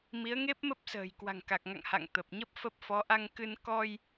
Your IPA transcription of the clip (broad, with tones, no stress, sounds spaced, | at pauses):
m i˨˦ ə̯ ŋ e˦˥ p̚ m ə˦˥ p̚ s ə̤ː˨˩ j k w a̤˨˩ ŋ k a˨˩ k̚ ŋ a̰˧˨ ŋ h a̰˧˨ ŋ t̪ ə˨˩ p̚ ɲ ə˦˥ p̚ f ə˦˥ p̚ f ɔ˨˦ ʔ a˧ ŋ k ɨ˧ n k ɔ˧ j